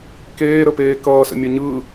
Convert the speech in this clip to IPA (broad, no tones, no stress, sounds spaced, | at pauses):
k eː ɾ ə p eː k ʌː s ə̰ mʲ ə ɲ ɯ